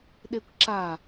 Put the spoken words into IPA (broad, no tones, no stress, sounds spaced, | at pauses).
ɗ e kʷ ǁ a